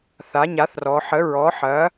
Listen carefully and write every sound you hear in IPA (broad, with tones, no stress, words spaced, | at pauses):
θa˩˥ɲa˩˥θrɔ˩˧ ħə˩˥ɹɔ˩˥ħɐ˩˥